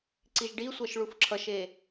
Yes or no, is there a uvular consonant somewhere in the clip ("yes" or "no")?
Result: no